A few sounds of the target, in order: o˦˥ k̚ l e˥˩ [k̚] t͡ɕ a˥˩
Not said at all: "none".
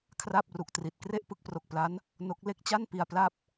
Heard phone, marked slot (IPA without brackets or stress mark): k̚